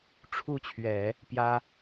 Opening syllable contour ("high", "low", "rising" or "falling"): falling